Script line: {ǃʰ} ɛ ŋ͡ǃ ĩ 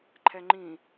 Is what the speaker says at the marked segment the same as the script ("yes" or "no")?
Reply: yes